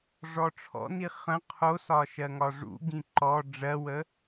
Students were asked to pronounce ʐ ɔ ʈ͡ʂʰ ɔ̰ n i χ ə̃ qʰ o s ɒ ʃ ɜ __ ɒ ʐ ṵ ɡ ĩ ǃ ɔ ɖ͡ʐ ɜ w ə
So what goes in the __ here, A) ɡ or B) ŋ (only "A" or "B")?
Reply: B